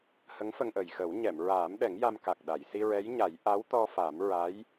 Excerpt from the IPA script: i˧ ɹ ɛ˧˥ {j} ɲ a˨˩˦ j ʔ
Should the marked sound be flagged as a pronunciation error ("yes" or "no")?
no